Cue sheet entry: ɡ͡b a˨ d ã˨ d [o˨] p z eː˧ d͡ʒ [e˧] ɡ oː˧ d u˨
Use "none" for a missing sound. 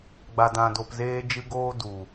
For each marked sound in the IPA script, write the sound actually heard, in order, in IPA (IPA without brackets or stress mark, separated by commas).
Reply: o˨, ɨ˧